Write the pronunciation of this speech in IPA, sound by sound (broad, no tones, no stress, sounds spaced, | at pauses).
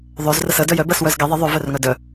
ðˤ ɵ z r ə s ə d œ j œ b ɜ s w œ z ɡ e ðˤ ə ðˤ ɵ v œ r ŋ œ d œ